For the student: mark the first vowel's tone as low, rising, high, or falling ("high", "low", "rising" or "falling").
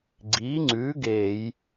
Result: rising